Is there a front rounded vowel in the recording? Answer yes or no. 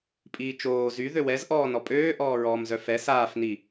yes